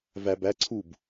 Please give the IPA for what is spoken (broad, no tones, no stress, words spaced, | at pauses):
væb æ ǀʰub